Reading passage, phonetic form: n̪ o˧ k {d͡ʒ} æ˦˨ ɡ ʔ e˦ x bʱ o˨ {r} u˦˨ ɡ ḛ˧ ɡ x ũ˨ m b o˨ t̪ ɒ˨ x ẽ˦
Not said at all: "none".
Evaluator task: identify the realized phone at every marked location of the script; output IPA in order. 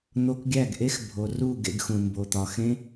ɡʲ, r

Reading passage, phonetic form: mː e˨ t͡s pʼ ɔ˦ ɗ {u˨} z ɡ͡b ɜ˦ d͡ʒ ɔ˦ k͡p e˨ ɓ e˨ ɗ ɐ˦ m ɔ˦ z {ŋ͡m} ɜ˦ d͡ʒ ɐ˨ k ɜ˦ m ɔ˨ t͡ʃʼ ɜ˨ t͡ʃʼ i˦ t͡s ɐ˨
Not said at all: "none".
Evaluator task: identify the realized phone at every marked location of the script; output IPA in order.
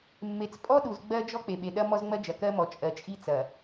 u˨, ŋ͡m

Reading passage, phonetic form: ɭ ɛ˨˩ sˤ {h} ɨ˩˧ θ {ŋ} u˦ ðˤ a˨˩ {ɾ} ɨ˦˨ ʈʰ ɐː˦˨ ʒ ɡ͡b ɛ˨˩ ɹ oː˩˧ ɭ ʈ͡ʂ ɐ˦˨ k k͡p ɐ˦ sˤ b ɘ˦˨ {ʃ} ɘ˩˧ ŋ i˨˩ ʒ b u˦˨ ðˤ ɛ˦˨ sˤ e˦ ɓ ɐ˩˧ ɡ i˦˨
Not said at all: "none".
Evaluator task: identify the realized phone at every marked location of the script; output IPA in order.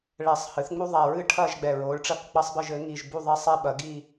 h, ŋ͡m, ɹ, ʒ

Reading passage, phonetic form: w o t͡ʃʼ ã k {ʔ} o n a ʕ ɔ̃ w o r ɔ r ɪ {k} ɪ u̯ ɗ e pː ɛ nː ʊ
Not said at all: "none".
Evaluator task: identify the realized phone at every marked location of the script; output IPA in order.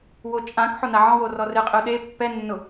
ħ, qʼ

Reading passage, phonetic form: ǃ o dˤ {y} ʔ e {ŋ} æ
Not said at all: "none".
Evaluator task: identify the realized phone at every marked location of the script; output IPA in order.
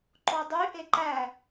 y, ǃ

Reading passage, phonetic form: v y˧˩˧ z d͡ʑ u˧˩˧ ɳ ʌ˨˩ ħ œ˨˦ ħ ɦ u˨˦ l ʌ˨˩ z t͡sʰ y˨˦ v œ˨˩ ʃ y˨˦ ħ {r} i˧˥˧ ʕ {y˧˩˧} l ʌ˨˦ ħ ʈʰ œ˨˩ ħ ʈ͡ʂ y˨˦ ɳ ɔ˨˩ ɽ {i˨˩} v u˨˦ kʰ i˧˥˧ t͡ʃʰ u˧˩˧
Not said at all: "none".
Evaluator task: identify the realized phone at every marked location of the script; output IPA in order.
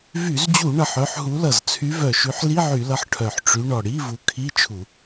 l, y˧˩˧, i˧˥˧

